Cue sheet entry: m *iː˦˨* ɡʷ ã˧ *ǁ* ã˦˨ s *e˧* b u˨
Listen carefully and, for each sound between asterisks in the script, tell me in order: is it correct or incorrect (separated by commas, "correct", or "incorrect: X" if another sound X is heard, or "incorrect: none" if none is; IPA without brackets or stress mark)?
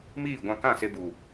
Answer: correct, incorrect: k, correct